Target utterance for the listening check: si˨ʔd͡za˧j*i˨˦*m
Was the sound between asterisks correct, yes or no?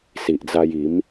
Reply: yes